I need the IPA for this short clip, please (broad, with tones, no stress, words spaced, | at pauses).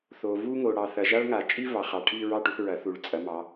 θo˨vu˥ŋo˨ ɽɑ˨θɐ˨ʒa˥ɭ ŋa˨˩˦t͡ʃʼi˥ vɑ˨˦χɑ˨ ʈʰi˥˧ɹɑ˥˧ʈu˨˦θ ɹɐ˨˩˦θu˨˦ɭ t͡sʼɐ˨˦mɑ˨˦